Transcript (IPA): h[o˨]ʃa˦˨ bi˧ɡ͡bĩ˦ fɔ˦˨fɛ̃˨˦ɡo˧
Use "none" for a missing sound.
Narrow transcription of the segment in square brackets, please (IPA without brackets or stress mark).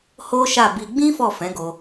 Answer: o˦